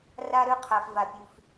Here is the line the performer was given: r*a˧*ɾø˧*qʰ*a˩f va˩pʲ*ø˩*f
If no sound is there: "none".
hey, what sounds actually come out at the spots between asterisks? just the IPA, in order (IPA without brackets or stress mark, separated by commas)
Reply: a˧, qʰ, ʉ˩